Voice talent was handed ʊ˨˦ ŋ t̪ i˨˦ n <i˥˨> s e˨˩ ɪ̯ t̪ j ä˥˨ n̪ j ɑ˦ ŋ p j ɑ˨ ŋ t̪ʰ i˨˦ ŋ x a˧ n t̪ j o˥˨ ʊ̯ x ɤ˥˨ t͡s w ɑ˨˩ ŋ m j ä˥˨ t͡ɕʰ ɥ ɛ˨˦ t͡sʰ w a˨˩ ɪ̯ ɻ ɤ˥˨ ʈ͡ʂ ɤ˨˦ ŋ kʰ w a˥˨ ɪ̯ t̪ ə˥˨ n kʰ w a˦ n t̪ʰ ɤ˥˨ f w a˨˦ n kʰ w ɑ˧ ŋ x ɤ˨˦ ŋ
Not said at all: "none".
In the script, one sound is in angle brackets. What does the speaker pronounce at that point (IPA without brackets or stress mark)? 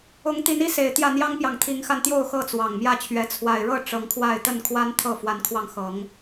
i˦